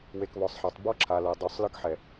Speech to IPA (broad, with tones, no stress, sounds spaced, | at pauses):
w e˨ k β ɔ˨ sˤ ħ a˨ tˤ b ɔ˦ ǁʰ a˨ l ɤ˨ dˤ u˨ sˤ l ɯ˦ k ħ ɛ˨